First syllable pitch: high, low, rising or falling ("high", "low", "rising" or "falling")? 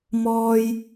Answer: high